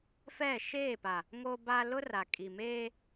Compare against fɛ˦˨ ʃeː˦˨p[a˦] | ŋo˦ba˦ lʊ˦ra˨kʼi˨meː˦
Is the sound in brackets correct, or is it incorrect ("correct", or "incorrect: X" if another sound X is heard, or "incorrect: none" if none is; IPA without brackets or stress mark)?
incorrect: a˨